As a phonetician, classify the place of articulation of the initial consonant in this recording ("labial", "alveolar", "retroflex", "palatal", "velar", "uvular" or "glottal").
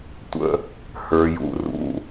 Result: alveolar